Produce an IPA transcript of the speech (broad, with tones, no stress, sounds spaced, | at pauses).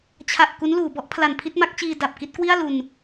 t͡ɕʰ a˨˩ ʔ k u˦˥ n l uː˩˦ b ɔ˦˥ ʔ pʰ l a˨˩ n pʰ i˥˩ t̚ m a˦˥ k̚ t͡ɕ iː˧ d a˨˩ p̚ k i˥˩ t̚ k w i˥˩ a̯ l u˧ n